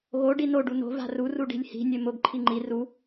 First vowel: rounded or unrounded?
rounded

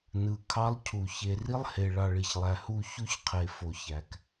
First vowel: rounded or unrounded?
unrounded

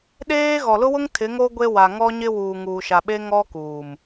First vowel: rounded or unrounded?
unrounded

